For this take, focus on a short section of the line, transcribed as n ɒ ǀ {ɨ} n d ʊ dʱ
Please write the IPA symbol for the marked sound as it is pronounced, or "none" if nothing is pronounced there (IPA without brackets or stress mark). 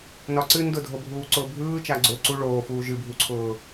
ɨ